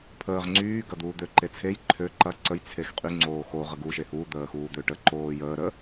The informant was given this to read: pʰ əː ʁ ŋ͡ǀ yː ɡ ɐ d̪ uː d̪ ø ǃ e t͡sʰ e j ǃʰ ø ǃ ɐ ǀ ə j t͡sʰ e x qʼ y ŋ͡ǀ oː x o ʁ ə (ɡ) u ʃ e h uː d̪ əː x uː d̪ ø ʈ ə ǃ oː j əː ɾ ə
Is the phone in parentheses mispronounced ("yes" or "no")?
no